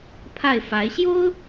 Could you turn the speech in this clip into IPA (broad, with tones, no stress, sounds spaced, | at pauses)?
pʰ a˥˩ ɪ̯ f a˧˥ ɪ̯ ɕ j o˥ ʊ̯